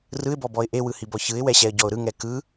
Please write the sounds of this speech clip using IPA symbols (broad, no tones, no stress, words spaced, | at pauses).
rɯɪ̯bɔbɔɪ̯ ʔewɯhibɔ çɯɪ̯wɛɕɛə̯ɟɔʊ̯ ɾɯŋɛ kɯ